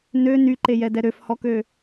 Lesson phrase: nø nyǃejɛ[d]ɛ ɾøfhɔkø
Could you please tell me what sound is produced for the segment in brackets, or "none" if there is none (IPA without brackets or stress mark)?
d